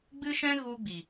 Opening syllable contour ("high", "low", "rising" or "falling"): high